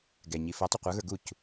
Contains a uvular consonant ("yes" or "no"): yes